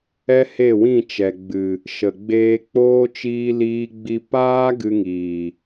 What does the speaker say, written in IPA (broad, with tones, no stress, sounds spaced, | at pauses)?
ɛ˦ h e˦˨ w ĩ˦˨ t͡ʃ ɛ˨ ɡ͡b ɨ˨ | ʃ ə˨ ɡ͡b eː˧ k͡p oː˦ t͡ʃ iː˧ l iː˧ ɡ͡b i˧ p aː˦ ɡ ɨ˧ ŋ iː˨